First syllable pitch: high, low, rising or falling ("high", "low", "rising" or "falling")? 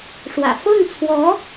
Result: low